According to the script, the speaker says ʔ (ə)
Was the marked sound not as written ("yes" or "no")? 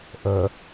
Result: no